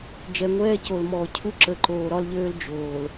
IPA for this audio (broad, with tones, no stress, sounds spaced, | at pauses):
d͡ʒ ɛ˨ ŋʷ ɛː˦ c o˨ l m ɔː˨ cʰ u˦ ǁ ə˨ ǃ oː˨ ɾ ɒ˦ l ʎ øː˦ l d͡ʒ oː˨ l